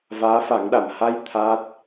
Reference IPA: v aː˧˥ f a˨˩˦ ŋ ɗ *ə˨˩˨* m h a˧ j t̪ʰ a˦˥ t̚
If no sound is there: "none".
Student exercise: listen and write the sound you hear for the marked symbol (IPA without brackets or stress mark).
a˨˩˨